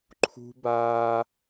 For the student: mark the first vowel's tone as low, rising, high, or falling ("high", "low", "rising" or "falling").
high